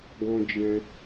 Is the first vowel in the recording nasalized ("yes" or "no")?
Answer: yes